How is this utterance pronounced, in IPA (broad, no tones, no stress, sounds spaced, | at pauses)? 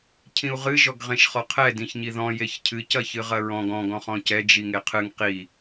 cʰ ĩ u̯ ʁ ɨ ʒ ɔ ɡ ʁ ẽ ʃ χ ɔ qʰ ɛ d ĩ ç ɲ i ð ɔ̃ j e ç cʰ ɨ c ɐ ç ɨ ʁ ɐ ɹ ɔ̃ ɡ ɔ̃ ɡ ɔ̃ χ ɔ̃ c ɛ d͡ʒ i ŋ e qʰ ɨ ŋ q i